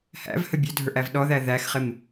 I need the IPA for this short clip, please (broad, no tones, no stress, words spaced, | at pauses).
hæ̰vhə bʲødʱə˞ʔæv ɗɔðæ ðæxχɪm